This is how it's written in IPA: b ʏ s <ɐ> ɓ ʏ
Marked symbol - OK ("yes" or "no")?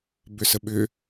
no